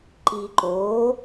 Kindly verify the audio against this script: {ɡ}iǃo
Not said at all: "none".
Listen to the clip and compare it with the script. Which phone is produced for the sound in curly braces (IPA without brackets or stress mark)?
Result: ǃ